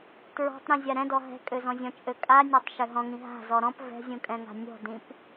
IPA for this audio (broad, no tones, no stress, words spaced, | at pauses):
tɹɔ̤tˤɾĩ zʲaɾɛ̃dɔ ɦɛ̤ kʼøzɔ̃zʲɔ̃t͡ʃʼø kʼanʲøtˤ ʃøɦɔ̃ŋĩ ɦa̤zɔ ɾɔ̃p vɛ̤zʲũ kʼɛ̃ŋa̤nʲɔ̤dĩp